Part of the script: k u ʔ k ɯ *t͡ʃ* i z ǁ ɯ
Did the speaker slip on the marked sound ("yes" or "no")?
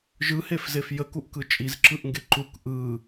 yes